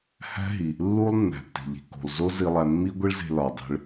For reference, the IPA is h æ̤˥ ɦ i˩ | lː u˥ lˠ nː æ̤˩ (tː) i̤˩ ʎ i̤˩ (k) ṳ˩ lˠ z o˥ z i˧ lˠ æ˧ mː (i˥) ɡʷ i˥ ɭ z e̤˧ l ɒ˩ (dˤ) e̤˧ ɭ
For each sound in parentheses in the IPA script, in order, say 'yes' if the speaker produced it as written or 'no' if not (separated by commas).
yes, yes, yes, yes